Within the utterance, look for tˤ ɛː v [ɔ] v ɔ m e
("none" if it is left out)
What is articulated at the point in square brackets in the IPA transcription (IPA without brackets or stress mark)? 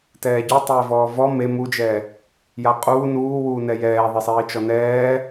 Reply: ɔː